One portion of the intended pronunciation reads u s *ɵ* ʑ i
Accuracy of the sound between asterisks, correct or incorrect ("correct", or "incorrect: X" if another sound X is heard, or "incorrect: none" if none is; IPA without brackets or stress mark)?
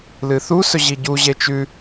correct